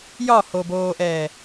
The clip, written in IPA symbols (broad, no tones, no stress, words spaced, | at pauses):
jɒhoboːʔɛː